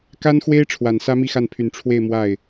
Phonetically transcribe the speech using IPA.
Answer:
ka˥nxwe˥ɪ̯ ʈ͡ʂʰwa˨˩nsä˥ mi˥˧xa˥˩npʰy˨˩n ʈ͡ʂʰwe˥˧ɪ̯ mwa˥˩ɪ̯

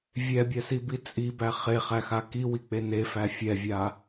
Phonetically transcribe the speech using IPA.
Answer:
vʲɛbʲɛsibi t͡sʼibæ χeχæxa kiwik͡pe nefæ fʲɛvʲa

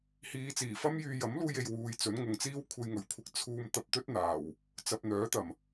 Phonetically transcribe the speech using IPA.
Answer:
hiː˨˧t͡siː˨˩fɐ˥mjyː˧ jɐ˨˥mluː˧je˨j wuː˨˧jt͡sɵ˨˥nŋʊ˨ŋ t͡siː˥wkʷʰe˧j ŋɵ˨˩ɥkʷʰɪ˧k̚ t͡sʰuː˧mt̪ɐ˧p̚t̪ɵ˥t̚ n̪aː˨˩w | t͡sɐ˨p̚n̪œː˨˥t̪ɐ˨˩m

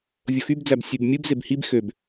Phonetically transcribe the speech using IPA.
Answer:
vʲoxybd͡zæb sʲebmʲɯb zebhib xøb

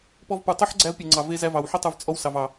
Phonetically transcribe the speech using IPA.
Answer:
pɔ˧vpu˨tˤu˦ħ ɡ͡ǀæ˧v pʲe˨ŋ͡ǀɑ˨ ve˧zæ˧vɑ˨wħʉ˦ tˤu˧vt͡sʼɔ˦wsɑ˨v ɑ˨

